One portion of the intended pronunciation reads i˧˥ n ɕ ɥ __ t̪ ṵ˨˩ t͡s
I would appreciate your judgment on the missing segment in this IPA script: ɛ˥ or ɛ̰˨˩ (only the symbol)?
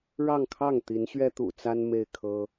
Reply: ɛ˥